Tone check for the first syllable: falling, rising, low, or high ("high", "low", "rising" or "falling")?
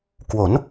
rising